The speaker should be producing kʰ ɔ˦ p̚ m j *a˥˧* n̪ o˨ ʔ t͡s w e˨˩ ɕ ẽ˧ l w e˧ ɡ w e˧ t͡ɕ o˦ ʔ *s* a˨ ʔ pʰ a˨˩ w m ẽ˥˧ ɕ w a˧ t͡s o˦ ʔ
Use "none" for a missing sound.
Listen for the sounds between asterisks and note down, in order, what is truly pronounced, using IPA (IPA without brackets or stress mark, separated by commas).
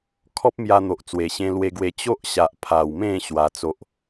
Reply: a˧, ɕ